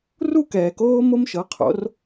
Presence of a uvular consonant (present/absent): present